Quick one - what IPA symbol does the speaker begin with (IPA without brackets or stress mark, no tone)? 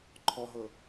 ǃʰ